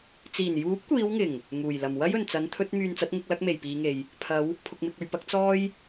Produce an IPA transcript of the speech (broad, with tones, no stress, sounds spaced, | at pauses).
t͡s iː˨˩ n j uː˨˥ p̚ kʷ iː˨˧ w ŋ ɪ˨˩ ŋ | ŋ uː˨˩ j l ɐ˨˩ m w ɐ˥ j ɵ˨˩ n t͡s ɐ˨˥ n t̪ʰ ɵ˨˥ t̚ m yː˨ n t͡s ɐ˨˥ t̚ ŋ ɪ˧ k̚ l ɐ˨˥ k̚ m e˨˩ j p iː˨˧ ŋ e˨ j | pʰ ɐ˨˧ w | pʰ ʊ˨ k̚ m ɪ˨ k̚ ɵ˨ ɥ p ɐ˨˥ k̚ t͡s ɔː˥ j